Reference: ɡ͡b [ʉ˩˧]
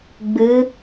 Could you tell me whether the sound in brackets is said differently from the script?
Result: yes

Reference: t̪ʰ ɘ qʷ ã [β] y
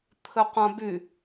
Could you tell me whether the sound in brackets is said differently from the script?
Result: yes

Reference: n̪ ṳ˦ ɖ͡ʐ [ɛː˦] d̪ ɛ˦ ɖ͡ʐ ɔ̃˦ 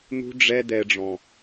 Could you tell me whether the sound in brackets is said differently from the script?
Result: yes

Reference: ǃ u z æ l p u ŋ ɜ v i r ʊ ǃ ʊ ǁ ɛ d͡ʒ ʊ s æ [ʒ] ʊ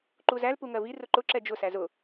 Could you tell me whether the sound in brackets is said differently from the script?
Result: yes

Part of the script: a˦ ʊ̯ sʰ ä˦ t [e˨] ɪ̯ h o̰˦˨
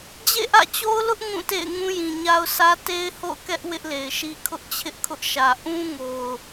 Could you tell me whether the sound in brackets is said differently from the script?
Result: yes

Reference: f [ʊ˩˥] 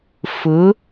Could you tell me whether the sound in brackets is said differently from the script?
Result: no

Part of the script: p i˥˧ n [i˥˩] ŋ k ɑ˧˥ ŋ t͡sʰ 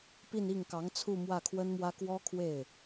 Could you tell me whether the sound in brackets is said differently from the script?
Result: no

